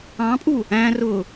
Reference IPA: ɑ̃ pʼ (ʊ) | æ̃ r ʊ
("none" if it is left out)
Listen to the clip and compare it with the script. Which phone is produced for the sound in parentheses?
u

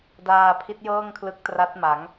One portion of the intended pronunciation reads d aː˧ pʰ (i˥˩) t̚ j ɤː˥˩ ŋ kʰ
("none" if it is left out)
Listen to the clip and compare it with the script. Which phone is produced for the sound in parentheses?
i˦˥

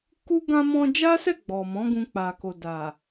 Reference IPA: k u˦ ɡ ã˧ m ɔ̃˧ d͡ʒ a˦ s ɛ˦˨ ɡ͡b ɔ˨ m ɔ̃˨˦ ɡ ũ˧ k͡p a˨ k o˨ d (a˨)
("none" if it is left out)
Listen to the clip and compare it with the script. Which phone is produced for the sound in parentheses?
a˨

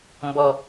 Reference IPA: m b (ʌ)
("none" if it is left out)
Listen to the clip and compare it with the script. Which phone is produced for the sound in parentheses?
ɔ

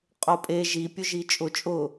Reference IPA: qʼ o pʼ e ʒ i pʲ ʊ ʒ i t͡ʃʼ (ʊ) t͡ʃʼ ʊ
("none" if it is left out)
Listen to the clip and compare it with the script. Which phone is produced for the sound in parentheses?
ʊ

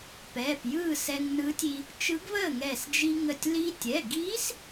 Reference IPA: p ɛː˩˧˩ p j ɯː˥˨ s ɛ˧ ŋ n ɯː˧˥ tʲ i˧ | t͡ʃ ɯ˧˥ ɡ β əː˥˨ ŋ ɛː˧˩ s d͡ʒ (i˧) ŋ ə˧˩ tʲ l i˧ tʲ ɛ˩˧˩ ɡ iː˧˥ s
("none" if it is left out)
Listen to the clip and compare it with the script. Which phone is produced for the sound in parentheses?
i˧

